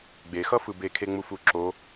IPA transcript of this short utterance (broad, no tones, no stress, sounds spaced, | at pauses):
ɡ͡b e x ʌ f ɯ b e kʰ e ŋ͡m u f u ǁ o